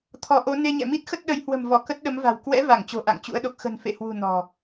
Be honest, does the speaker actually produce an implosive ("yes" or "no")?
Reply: yes